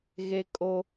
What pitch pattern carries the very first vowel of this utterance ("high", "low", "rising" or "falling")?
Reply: high